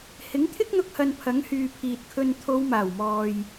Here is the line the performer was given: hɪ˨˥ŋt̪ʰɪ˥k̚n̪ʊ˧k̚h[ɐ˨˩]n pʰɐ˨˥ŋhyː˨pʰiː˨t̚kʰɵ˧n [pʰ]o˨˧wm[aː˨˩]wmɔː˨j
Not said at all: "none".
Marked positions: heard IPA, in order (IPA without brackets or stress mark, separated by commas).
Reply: ɐ˨, t̪ʰ, aː˨˩